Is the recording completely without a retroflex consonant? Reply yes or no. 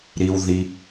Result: yes